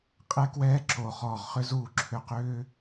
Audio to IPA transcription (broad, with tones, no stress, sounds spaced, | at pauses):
qʼ ɛ˦ k w ɛː˦ ǁ o˨ χ ɔː˨ ʁ χ ʏ˦ z uː˧ ǁʰ ʏ˧ q ʏː˦